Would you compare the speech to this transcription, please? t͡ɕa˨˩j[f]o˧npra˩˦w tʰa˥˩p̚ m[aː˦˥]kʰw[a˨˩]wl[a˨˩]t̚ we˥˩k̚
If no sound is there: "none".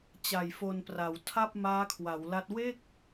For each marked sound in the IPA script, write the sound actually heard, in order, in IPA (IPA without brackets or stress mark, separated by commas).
f, aː˦˥, a˩˦, a˦˥